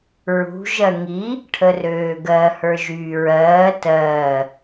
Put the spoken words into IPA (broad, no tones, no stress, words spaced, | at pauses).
ɹṳ ʒɜŋi | ʈʰərøːɡɜ hə˞ʒyːɹɜː tɜː